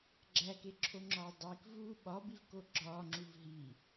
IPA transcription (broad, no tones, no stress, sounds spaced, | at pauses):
ɡ͡ǁ æ k e ǁʰ o ŋ͡ǁ ɒː dˤ i k v uː ɓ ɒ b i v k o ɡ͡ǁ ɒː ŋ͡ǁ u v ɦ i